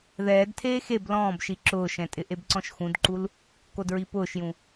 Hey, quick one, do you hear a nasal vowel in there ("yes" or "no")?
yes